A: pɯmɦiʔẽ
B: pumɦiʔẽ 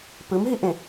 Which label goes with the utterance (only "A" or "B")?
A